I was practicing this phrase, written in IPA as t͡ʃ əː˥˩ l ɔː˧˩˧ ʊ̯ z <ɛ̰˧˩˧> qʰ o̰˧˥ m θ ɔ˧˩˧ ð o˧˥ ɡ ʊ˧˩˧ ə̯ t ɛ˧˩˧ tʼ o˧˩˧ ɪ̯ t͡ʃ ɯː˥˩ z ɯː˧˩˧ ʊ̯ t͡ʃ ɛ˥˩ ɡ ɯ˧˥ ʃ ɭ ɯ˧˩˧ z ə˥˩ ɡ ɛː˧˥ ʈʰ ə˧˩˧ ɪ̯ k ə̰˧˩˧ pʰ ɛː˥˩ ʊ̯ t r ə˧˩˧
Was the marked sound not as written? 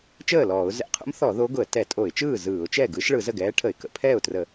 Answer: no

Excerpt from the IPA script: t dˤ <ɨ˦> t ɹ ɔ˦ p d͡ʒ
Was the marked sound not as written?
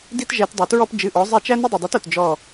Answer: yes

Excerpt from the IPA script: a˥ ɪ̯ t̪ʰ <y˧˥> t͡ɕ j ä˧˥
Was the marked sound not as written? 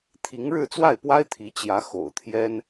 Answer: yes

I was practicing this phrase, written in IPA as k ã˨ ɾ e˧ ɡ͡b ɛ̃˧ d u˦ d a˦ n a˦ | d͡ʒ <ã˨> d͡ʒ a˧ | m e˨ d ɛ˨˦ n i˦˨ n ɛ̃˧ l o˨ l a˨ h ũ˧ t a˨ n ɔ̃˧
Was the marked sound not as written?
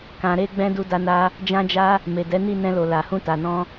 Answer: yes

